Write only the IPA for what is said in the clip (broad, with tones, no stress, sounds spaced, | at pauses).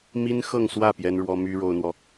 m i˥ n x ɤ˥˧ ŋ s w ä˥˩ p j ɛ˥ n ɻ w ɔ˥ m y˥ ɻ o˥ ʊ̯ n̪ w ɔ˨